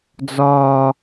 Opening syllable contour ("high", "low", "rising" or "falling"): high